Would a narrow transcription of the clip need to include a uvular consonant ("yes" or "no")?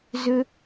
no